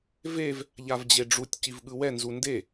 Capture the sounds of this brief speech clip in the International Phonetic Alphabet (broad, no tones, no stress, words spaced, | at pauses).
vev | ʎavd͡ʑeɖ͡ʐutʲ civɠɯwɛ nzunde